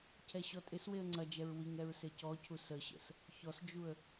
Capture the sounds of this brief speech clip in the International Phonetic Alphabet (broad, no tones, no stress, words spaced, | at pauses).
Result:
cʰɛɕɔtʼɪsweə̯ ŋ͡ǀɐd͡ʒɛɹ wiŋ ɛɹsecɔcʰu səɕə̰s | çɔsd͡ʒuə̯